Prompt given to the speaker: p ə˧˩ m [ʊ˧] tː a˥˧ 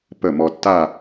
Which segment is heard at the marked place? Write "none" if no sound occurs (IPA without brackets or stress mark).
ɔ˧